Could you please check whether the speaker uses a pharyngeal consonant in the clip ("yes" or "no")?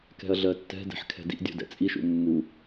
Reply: yes